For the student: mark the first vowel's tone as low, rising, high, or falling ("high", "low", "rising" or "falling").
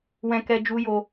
high